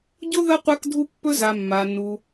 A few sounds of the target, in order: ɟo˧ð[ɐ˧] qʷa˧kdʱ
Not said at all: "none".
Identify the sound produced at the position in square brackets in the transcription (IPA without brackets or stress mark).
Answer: ɐ˧